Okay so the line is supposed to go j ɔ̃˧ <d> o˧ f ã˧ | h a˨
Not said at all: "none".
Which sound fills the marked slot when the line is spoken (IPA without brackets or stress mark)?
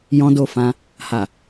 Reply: d